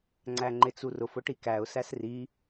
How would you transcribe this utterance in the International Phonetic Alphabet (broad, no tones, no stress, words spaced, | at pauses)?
ŋ͡ǀæŋ͡ǃɪt͡surʊf ʊʈikæʊ̯ sæsri